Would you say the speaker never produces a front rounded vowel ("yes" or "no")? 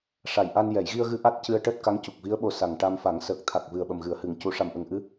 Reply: yes